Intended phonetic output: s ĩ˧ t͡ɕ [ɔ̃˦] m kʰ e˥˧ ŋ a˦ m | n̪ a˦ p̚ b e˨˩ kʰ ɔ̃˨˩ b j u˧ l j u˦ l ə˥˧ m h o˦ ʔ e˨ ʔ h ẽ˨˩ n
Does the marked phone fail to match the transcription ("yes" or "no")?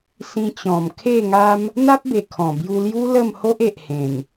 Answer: yes